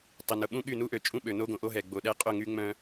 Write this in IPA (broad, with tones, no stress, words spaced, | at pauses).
tˤɪ˨nʊ˨ɓũ˦ɠy˦˨ nu˦ʔø˨ t͡ʃʼũ˦ɓø˨ no˦ɡõ˨ʔo˦ɦɛ˨ ɡ͡bo˨ɗɛ˦ qʼʊ˦˨ŋy˦ŋ͡mœ̃˦